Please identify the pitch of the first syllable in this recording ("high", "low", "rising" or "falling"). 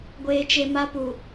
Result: low